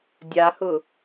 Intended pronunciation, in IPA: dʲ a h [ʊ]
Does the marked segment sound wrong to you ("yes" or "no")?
no